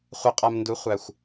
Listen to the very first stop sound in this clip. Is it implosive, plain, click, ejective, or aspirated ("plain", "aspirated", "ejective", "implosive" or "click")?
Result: ejective